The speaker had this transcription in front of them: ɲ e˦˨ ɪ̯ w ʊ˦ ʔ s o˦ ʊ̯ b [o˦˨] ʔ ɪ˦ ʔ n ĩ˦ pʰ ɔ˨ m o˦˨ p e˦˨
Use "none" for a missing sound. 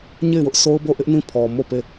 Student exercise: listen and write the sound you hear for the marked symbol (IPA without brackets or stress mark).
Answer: o˦˨